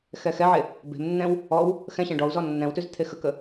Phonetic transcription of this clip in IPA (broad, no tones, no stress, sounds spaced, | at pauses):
x ɛ x ɛ ʕ e | b e̤ m nː ɛ̃ w | ɔ w | x ɛ̃ ɕ ɛ̃ ɖ ɔ u̯ z ɔ nː ɛ̃ w t ʉ z t̪ʰ e x ə k ə